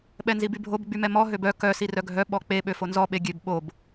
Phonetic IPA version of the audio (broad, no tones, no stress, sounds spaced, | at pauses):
ɓ ɛ n z i b y bʱ o b ɡ͡b y m ɛ m ɔ ɦ ø b œ k œ s i r œ ɡʱ œ ɓ ɔ k͡p e ɓ ø f o n z ɔ ɓ e ɡʲ ø b ɓ o b